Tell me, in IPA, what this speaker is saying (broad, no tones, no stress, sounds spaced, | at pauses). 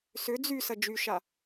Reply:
s ʏ d͡z y s ɐ d͡ʒ y ʃ a